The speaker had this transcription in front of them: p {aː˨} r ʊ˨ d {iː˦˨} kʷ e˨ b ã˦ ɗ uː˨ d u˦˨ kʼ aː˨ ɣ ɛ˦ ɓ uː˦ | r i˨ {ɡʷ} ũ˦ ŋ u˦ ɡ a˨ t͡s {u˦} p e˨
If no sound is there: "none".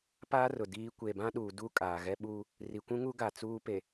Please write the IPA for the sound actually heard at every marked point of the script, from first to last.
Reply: aː˦, iː˨˦, kʷ, uː˦

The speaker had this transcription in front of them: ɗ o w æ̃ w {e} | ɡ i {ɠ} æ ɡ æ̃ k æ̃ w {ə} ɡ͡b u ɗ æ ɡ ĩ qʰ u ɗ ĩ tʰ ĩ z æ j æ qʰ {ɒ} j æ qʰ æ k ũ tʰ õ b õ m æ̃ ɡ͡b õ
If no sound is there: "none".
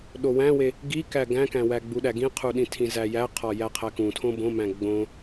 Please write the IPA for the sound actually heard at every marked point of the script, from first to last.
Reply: e, k, æ, ɒ

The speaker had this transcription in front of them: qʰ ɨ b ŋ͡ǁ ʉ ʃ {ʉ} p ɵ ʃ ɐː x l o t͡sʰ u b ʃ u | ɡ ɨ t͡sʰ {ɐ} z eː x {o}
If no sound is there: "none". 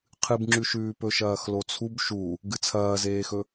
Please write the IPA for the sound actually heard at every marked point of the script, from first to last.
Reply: ʉː, ɐː, ɵ

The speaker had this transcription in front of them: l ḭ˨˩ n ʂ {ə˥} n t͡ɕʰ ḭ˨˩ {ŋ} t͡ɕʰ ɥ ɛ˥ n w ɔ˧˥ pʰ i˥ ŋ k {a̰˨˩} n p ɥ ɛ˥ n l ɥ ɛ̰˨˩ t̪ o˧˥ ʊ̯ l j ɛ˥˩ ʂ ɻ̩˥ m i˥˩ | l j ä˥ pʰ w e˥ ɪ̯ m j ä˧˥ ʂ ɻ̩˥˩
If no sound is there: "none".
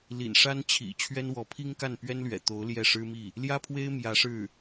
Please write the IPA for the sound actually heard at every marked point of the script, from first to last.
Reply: a˥, none, a˥˩

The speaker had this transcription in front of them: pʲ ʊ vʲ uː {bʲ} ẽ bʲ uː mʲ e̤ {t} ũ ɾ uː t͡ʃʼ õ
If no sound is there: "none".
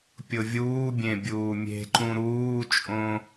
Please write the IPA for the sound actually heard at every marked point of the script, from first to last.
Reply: bʲ, ǃ

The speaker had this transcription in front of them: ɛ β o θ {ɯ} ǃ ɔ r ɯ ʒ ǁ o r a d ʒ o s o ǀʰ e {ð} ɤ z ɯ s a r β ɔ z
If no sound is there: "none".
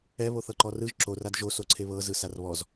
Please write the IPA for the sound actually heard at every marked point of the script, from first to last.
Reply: ɤ, β

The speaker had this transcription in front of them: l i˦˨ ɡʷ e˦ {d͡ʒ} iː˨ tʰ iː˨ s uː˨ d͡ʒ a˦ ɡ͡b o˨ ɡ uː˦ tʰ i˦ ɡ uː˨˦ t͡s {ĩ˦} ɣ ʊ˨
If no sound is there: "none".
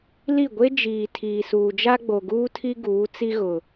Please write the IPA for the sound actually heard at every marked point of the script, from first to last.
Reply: d͡ʒ, i˦

